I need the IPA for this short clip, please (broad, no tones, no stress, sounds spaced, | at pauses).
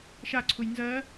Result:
ʃ a ǀʰ u j n z ɜ